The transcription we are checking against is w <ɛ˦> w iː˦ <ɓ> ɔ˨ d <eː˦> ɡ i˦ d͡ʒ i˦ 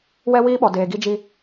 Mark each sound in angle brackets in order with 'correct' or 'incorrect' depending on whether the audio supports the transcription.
correct, correct, incorrect: eː˨

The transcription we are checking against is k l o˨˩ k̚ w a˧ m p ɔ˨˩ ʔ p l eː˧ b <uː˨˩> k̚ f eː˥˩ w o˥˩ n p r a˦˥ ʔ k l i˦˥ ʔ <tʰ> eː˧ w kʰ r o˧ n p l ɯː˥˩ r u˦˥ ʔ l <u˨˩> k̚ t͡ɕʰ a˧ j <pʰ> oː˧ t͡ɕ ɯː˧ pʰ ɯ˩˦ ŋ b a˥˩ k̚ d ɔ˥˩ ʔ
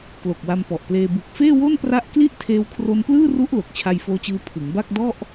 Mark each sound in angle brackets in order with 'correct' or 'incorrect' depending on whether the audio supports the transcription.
incorrect: u˨˩, correct, incorrect: o˨˩, incorrect: f

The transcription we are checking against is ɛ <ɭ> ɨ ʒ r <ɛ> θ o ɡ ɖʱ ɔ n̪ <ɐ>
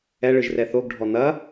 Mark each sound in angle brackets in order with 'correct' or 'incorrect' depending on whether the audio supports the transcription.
correct, correct, correct

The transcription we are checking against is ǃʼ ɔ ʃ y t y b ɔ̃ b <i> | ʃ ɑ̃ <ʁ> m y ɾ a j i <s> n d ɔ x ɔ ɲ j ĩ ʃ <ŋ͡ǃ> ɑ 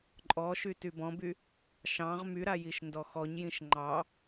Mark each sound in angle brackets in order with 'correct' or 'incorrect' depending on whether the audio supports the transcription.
incorrect: y, correct, incorrect: ʃ, correct

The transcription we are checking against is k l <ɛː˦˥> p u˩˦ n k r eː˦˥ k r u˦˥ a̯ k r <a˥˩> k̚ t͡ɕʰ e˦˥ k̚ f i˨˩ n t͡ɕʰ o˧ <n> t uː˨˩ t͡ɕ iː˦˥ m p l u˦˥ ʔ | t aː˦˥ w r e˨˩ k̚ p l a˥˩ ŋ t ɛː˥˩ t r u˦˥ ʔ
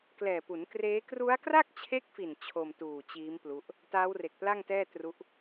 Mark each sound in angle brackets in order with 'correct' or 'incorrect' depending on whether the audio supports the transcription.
incorrect: ɛː˨˩, correct, incorrect: m

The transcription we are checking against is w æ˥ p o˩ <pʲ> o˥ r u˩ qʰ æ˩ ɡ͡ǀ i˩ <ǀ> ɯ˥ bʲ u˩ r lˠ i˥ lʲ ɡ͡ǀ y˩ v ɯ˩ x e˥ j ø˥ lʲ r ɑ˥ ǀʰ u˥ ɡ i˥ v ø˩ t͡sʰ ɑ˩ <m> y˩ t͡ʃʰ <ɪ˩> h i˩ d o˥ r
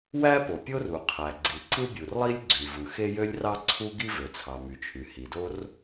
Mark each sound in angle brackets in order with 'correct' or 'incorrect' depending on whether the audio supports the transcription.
correct, correct, correct, incorrect: y˩

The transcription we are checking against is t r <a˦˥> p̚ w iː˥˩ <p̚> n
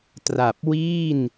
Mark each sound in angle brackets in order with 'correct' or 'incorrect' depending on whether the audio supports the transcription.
incorrect: a˨˩, incorrect: none

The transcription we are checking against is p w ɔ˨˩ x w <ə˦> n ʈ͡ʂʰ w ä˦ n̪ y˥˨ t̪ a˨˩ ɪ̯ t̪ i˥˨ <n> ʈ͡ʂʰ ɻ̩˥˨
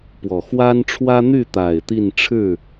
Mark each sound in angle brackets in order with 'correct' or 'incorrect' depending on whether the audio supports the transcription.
incorrect: a˦, correct

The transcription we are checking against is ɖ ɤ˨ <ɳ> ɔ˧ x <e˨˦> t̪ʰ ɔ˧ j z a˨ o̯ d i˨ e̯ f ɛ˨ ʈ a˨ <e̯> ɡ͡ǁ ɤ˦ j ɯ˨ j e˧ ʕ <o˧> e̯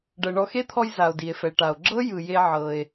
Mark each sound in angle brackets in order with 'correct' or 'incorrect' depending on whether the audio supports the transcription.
correct, incorrect: e˦, incorrect: o̯, incorrect: ɤ˧

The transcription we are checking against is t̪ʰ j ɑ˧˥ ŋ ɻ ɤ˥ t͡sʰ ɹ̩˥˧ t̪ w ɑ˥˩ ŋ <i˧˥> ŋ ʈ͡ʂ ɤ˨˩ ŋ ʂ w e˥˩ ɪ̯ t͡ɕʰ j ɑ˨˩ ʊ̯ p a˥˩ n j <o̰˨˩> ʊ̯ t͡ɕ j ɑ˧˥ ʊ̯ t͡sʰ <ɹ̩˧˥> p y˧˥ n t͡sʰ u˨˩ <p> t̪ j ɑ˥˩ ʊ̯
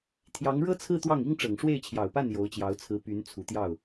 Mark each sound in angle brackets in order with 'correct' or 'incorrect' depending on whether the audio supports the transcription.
incorrect: i˥, incorrect: o˧˥, correct, incorrect: none

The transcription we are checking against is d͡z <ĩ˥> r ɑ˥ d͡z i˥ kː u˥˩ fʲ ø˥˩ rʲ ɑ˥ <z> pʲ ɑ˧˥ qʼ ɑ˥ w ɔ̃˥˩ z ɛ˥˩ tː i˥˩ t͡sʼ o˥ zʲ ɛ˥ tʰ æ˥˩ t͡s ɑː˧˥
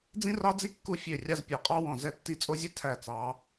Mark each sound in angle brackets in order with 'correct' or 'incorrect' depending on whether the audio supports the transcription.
correct, correct

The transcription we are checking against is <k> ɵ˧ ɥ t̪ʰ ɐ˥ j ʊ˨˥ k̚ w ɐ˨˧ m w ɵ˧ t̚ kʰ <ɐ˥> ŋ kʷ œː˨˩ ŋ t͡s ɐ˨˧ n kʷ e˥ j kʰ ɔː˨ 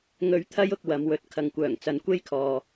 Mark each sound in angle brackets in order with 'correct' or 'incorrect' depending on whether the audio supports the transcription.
incorrect: ŋ, incorrect: ɐ˨

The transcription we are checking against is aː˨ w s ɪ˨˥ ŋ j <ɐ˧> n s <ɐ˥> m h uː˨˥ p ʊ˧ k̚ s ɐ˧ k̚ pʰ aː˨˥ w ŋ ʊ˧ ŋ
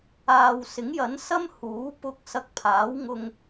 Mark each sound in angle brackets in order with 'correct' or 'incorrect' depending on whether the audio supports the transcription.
incorrect: ɐ˨˥, correct

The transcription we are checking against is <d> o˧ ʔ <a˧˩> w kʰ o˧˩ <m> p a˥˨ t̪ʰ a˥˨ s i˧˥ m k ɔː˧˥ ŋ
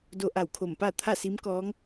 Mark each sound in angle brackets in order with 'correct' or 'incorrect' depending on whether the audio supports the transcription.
correct, correct, correct

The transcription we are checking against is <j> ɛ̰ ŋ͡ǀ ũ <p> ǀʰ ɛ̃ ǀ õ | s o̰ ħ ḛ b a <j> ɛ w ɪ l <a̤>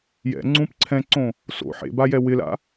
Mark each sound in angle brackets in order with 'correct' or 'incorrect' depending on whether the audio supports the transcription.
correct, correct, correct, incorrect: a̰

